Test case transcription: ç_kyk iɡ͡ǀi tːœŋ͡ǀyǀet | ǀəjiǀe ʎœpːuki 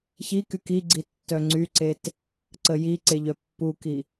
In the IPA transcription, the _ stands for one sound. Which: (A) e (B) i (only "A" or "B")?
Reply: B